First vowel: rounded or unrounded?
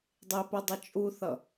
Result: unrounded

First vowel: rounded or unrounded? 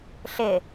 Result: unrounded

